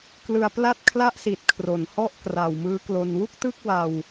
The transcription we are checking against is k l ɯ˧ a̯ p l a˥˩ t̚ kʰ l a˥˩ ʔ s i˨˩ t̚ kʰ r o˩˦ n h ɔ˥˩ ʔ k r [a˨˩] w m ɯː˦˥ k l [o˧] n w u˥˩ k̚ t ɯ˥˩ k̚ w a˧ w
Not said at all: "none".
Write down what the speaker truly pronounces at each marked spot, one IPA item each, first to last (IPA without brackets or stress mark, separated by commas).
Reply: a˨˩, o˧